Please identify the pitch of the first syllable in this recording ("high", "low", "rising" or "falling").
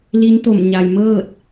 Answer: rising